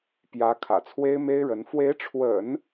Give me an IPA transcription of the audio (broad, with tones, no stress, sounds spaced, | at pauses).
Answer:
p j ä˧˥ kʰ ä̰˨˩ t͡sʰ w e˥ ɪ̯ m e˥ ɪ̯ ɻ ə˧˥ n f w e˧˥ ɪ̯ ʈ͡ʂʰ w ə̰˨˩˦ n